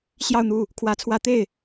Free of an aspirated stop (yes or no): no